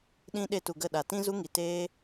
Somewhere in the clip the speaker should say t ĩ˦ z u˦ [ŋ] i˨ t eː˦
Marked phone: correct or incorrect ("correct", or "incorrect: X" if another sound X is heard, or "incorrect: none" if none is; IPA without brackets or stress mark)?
correct